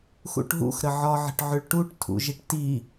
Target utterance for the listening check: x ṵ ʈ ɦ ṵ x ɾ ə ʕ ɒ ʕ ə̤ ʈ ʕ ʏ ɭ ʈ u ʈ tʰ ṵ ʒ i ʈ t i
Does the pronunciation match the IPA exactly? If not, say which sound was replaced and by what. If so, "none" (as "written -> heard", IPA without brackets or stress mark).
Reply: none